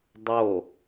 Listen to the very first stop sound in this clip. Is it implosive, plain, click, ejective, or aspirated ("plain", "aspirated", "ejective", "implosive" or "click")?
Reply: plain